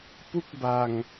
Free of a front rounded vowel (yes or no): yes